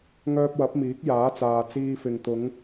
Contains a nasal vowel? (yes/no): no